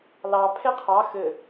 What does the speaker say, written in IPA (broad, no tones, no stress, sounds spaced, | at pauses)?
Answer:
l ɑ pʰ e qʰ ɑ x ɘ